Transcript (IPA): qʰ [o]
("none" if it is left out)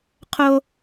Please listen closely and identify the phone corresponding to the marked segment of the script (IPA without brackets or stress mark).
o